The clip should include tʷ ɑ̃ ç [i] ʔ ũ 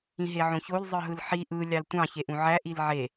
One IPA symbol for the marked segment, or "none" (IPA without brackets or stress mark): e